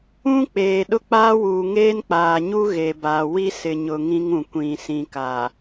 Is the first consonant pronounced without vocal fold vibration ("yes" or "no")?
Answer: yes